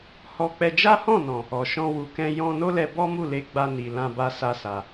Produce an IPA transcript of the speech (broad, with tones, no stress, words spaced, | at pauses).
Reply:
hɔ˧k͡pɛ˧ d͡ʒa˦hɔ̃˦˨nɔ̃˨ | ɔ˨ʃɔ̃˧ wu˨kɛ̃˧ jɔ̃˧ no˦lɛ˧bɔ˦ mu˦˨le˧ɡ͡ba˧ni˨ lã˧ba˧ sa˦sa˧